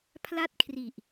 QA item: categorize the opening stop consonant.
aspirated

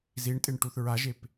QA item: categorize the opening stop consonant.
ejective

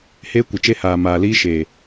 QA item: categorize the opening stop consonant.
plain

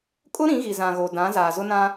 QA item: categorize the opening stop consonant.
ejective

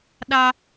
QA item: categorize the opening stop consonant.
implosive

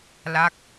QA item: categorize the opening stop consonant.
plain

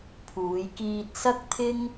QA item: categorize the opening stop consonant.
aspirated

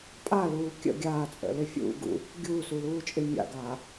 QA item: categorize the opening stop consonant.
ejective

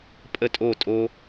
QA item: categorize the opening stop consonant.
ejective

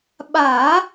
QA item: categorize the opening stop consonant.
implosive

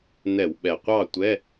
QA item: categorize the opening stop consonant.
implosive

